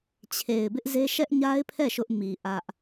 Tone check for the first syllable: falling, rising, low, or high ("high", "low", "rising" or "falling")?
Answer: low